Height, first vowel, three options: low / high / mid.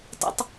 mid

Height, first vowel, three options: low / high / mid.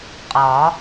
low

